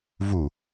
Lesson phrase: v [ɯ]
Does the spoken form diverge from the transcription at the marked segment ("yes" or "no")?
yes